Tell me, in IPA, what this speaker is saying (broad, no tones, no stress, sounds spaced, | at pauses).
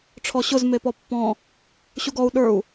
ʈ͡ʂʰ ɔ ɕ ʊ z m e p ɔ pː ɔ̃ | ɕ u ɡ ɔ u̯ ɗ ə˞ u̯